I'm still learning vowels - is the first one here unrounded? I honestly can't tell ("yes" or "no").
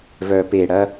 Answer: no